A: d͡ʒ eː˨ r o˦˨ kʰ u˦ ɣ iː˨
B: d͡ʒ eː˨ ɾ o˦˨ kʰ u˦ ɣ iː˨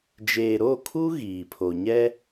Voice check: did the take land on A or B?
B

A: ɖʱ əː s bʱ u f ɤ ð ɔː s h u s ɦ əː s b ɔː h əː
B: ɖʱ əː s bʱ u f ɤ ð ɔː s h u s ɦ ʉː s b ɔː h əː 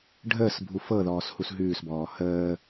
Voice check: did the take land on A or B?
B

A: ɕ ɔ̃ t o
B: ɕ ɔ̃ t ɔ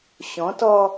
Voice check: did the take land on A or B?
B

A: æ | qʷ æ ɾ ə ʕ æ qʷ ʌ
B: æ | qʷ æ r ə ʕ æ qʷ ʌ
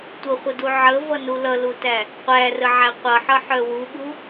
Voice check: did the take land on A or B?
B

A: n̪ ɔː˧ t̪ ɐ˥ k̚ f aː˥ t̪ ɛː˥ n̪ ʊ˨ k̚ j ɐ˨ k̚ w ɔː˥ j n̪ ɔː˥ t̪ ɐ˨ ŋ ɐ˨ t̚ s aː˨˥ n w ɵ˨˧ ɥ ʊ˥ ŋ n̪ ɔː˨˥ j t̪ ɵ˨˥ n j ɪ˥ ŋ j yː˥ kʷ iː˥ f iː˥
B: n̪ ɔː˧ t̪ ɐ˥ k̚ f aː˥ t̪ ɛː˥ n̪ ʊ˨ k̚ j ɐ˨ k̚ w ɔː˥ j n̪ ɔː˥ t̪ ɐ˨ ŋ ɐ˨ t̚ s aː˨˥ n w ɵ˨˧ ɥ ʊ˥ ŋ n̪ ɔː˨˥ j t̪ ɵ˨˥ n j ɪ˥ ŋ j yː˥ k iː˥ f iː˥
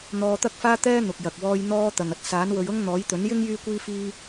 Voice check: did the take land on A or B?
A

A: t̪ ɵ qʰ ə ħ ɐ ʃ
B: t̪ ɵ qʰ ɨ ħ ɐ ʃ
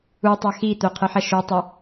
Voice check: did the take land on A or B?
B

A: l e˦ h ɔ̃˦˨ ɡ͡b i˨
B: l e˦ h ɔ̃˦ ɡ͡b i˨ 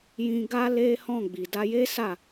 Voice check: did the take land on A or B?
A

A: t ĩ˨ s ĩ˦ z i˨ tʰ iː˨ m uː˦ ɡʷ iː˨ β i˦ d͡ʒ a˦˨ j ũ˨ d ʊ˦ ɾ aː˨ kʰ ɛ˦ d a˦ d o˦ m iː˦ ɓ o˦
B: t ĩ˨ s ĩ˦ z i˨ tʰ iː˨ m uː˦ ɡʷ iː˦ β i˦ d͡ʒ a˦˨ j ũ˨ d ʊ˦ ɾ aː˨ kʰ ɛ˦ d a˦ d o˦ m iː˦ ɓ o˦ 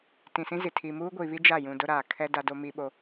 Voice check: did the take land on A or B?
A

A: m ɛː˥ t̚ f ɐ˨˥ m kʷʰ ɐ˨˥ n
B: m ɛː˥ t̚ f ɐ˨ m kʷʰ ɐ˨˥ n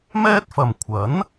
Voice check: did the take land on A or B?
B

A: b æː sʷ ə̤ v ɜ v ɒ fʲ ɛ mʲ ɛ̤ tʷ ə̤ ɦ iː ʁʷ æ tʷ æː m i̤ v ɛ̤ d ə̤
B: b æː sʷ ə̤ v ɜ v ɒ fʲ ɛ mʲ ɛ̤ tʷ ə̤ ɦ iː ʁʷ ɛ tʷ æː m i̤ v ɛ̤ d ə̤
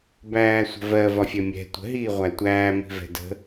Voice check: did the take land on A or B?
A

